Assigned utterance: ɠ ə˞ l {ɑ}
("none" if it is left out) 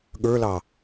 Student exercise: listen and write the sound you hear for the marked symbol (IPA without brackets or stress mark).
ɑ